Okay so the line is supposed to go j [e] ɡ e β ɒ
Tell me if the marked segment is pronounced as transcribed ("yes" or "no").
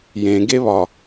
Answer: no